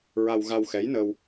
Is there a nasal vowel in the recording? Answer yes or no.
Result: no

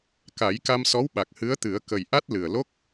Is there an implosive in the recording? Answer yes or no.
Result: yes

